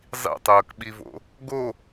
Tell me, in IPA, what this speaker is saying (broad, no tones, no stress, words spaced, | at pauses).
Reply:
zˤḭtˤɤːkɓivo̰ | ɡo